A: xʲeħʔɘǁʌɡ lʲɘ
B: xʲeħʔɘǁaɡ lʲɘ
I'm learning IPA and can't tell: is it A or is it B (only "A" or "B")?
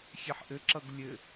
A